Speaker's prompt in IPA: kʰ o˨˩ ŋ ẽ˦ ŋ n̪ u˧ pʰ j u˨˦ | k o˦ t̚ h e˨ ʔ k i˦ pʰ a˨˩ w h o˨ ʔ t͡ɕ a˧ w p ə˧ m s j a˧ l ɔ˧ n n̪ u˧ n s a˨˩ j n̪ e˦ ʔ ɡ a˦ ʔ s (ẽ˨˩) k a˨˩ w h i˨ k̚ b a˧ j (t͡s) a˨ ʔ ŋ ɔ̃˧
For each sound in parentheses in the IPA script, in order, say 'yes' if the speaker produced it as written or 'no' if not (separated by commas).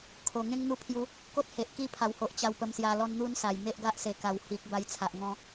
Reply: no, no